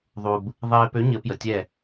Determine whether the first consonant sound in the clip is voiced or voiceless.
voiced